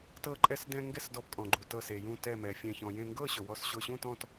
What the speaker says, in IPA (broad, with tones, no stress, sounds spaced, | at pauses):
t ɤ˧ ǃʼ ɛ˧ s d ɛ̃˧ ŋ ɡ ɛ˥˧ s d ɔ˧ p kʼ ɔ̃˧ ɡ͡ǃ u˧ t ɤ˥˧ s e˧ j ũ˥˧ t ɛ˥˧ m ɛ˧ fʲ ɛ̃˥˧ ç ɔ̃˧ j ẽ˥˧ ŋ ɡ ɤ˥˧ ɕ ɵ˧ w ɔ˥˧ s ɕ ʊ˥˧ ɕ ũ˥˧ t ɔ̃˥˧ t